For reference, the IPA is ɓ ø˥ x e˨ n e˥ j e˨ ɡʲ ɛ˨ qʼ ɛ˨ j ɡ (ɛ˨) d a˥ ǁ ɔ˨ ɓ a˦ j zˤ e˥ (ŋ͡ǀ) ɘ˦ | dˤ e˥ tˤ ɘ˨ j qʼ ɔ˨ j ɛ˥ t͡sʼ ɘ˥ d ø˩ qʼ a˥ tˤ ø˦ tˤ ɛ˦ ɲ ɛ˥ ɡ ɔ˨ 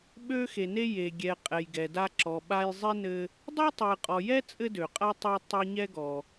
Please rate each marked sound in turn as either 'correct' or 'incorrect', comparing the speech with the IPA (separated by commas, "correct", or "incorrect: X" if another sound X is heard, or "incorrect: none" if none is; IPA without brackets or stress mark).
correct, incorrect: n